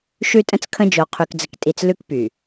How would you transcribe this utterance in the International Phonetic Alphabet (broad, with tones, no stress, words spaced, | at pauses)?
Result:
ʃʉ˦tʼə̃˦t͡skʰə̃˦ d͡ʒo˨qʰy˨kd͡zə˨ktʼi˨t͡s lʉ˦kpy˨